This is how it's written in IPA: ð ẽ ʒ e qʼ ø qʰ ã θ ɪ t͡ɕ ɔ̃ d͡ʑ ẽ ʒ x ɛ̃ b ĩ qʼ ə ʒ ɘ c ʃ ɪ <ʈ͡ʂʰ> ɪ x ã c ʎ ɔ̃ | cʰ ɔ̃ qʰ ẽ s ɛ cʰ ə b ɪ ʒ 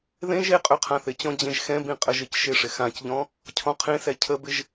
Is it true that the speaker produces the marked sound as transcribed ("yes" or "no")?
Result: no